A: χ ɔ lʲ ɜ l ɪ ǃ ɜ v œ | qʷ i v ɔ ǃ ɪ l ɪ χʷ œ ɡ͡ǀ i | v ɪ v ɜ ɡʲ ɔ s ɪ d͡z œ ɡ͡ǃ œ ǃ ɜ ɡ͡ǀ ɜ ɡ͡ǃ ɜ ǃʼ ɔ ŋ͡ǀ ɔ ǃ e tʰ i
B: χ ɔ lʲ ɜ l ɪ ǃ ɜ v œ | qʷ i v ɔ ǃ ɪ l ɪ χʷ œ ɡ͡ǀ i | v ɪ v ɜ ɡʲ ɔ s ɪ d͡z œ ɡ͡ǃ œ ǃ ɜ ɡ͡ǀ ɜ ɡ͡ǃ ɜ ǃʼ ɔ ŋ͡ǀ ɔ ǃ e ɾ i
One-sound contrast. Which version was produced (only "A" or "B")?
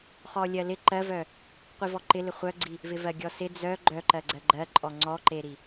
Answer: B